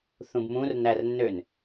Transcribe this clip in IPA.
θ ũ b m ũ r n æ r nː ø n

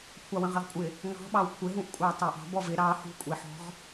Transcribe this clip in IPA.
kʷʰ ɑ w ə̃ ʁ ɪ ʁ kʷʼ ɪ | ŋ ɑ̤ ɓ ɑ w kʷʰ ɪ ɦ ũ ʔ kʷʼ ɑ tˤ ɑ ʔ ɑ̤ b ɔ v ɪ ɾ ɑ h ṳ kʷʼ i ħ ɔ̤ ʁ

